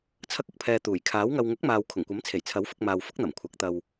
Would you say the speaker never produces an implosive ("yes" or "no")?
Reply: yes